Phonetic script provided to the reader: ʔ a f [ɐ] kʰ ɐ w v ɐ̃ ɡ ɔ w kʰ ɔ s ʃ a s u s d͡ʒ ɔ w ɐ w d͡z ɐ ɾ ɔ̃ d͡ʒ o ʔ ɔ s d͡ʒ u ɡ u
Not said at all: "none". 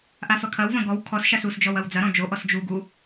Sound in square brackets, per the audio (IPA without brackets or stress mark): ɐ